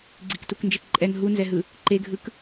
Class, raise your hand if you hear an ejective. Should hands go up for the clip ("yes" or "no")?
yes